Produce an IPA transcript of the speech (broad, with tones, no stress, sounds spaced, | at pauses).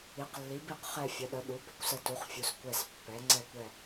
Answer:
i˩˥ q lː i˩˥ b i˦˨ q χ ɛ˦˨ fʲ ə˩˥ ɗ ə˩˥ ɗ u˩˥ b ə˩˥ kʷ s ə˦˨ t u˩˥ χ fʲ u˩˥ s kʷ ɛ˦˨ s pː ɛ˩˥ ŋ͡ǀ ɛ˦˨ kʷ ɛ˦˨